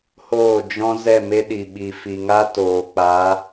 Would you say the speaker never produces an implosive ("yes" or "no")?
no